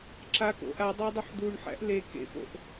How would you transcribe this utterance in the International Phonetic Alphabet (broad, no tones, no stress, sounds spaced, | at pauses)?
ǁ a k o̰ ʔ a dˤ æ dˤ u ħ d̪ u ɳ ħ æ̰ ʔ l e k ḛ p o̰ ʔ